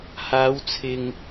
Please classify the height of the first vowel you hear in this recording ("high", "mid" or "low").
low